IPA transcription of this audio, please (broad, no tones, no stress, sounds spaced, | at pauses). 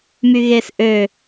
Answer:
m y ɣ e s ʔ ø